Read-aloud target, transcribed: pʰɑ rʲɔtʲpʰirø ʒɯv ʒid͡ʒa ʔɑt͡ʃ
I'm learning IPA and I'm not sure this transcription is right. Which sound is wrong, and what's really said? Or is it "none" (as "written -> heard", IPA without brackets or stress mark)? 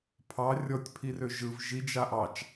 none